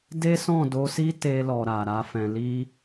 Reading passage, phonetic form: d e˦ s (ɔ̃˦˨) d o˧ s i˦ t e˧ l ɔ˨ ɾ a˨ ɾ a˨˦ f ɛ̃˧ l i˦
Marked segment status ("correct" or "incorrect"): correct